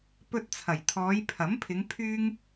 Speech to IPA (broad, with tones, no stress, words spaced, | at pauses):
pɵ˧t̚t͡sʰɐ˨˩j t̪ʰɔː˨˧jpʰɐ˨˥mpʰɪ˨˧ŋ pʰyː˥ŋ